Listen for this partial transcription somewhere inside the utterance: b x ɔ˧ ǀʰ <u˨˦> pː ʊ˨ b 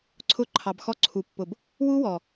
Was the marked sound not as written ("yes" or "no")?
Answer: yes